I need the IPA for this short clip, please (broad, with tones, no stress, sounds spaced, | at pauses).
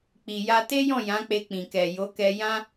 k͡p i˨ j a˧ t e˦ j ɔ̃˦˨ j ã˨˦ k͡p e˧ k͡p ĩ˨ k ɛ˨ j o˨˦ k ɛ˧ j ã˧